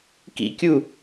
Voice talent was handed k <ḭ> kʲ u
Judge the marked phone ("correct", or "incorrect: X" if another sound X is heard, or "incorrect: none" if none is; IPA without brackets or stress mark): correct